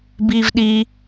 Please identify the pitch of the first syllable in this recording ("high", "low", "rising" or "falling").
low